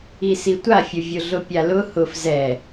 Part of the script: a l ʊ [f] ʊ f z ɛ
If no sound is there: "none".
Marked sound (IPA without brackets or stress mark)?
h